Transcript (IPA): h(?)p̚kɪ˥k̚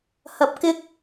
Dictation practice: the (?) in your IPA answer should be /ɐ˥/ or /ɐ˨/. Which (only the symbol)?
ɐ˨